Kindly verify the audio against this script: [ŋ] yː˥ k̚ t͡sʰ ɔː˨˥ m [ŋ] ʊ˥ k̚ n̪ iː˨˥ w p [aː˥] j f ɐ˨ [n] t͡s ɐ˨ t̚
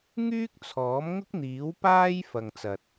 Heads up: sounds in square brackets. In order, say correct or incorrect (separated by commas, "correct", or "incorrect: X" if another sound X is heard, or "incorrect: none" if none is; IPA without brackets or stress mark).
correct, correct, correct, incorrect: ŋ